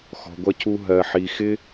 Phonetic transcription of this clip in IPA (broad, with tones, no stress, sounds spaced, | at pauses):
x ɔ̤˧ ɡʷ ʌ˦ cʰ u˦ ɦ ɜ˨ ħ i˨ x ɪ˧